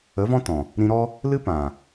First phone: ə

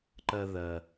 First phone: ǃ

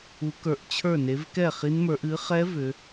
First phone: u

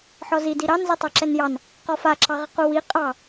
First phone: ħ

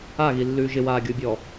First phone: a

